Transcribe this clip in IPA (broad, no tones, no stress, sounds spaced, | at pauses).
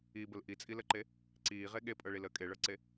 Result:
i b ə l ʔ i t͡sʼ i l ə ǃ e | ǀ iː ʁ e ɠ e pʼ ɤ ɭ i l əː kʼ e ɭ ɤ ǀ e